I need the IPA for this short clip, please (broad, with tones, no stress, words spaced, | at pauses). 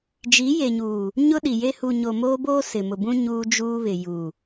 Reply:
d͡ʒi˨˦je˨ɲuː˨ | ɲʊ˦ɗi˨je˦ hu˨ɲo˨moː˦boː˦ sɪ˨mʊ˨bũ˦ ɲuː˦d͡ʒuː˦βɪ˨ juː˨